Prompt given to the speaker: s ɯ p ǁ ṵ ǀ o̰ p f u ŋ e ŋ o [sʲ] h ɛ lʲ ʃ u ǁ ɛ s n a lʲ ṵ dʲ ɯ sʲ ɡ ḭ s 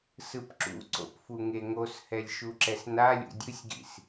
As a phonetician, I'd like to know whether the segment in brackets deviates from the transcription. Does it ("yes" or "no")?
yes